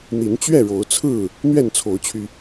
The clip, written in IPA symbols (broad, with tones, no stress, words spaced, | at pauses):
n̪i˨˦nt͡ɕɥɛ˥˨ɻo˨˦ʊ̯t͡sʰɹ̩˥˨ | n̪ɥɛ˥˨nt͡sʰo˨˦ʊ̯t͡ɕʰy˧